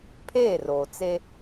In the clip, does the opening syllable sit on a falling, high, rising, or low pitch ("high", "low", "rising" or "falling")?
falling